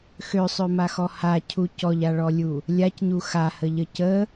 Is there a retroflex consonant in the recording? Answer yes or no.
yes